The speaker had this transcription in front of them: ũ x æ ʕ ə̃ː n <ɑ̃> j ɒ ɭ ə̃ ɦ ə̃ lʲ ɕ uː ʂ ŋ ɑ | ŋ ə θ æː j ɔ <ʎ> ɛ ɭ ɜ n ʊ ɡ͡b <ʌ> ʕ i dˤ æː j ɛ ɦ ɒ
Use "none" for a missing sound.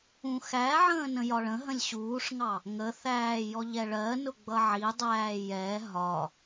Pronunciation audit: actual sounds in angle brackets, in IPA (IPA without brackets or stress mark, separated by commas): ə̃, ʎ, ʌ